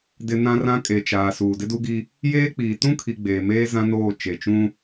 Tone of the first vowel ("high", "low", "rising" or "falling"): low